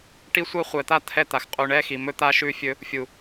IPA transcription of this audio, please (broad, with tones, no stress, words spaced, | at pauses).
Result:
ʈi˦sʷɜ˦ χʷɛ˨t̪a˦ t̪ʰɛ˦ t̪a˨xqʼu˨ ɳɛ˦ xi˨mɵ˦t̪a˦ ʃʉ˦fʲɵ˦ | fʲu˨